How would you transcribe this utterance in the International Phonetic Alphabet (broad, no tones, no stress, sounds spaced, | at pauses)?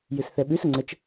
j ɨ s θ ɛ ɓ ʉ s ə ŋ͡ǀ ə t͡ʃ